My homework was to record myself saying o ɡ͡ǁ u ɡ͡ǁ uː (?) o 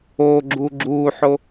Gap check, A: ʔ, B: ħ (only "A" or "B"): B